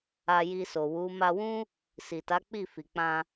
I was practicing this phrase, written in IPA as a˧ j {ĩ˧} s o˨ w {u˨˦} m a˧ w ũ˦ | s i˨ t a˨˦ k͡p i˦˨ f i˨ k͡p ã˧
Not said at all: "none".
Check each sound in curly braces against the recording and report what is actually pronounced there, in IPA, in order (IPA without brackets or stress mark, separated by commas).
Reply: i˧, u˨˦